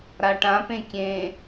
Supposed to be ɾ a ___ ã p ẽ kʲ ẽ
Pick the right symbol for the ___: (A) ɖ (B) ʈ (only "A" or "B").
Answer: B